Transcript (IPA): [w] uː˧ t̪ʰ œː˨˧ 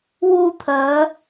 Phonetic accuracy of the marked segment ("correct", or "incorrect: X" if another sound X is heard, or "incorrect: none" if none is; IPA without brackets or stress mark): correct